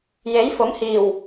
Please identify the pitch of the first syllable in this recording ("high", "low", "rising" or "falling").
rising